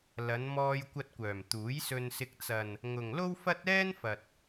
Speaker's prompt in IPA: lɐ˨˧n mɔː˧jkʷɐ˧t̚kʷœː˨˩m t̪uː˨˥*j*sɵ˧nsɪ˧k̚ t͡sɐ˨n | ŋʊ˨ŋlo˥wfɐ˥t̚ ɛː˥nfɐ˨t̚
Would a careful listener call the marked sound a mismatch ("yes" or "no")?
no